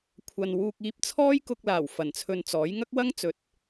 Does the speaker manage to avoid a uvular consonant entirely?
yes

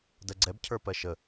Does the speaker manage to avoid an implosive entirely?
yes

